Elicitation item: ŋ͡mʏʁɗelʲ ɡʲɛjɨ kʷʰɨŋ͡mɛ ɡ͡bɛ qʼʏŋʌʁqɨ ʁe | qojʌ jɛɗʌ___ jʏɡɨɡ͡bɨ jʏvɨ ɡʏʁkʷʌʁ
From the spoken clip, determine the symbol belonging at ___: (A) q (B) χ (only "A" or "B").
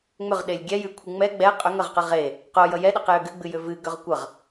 A